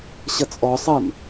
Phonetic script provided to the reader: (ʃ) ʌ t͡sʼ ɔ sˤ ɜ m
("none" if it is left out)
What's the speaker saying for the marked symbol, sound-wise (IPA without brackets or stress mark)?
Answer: ɕ